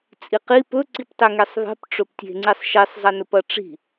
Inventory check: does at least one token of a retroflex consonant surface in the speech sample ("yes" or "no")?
yes